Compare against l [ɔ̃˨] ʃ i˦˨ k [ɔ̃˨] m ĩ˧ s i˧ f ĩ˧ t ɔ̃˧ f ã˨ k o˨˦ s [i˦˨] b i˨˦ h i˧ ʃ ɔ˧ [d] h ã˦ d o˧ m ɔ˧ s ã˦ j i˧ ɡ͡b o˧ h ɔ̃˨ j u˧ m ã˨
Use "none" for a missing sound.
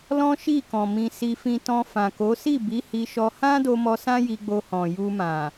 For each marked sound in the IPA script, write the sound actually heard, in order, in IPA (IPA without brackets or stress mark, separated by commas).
ɔ̃˦, ɔ̃˨, i˦˨, none